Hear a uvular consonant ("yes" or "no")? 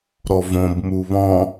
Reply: no